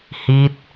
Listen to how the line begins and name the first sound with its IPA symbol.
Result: h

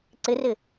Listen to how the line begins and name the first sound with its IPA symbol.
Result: ǀ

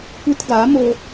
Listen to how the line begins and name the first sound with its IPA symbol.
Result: kʷ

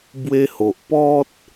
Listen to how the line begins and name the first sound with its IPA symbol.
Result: b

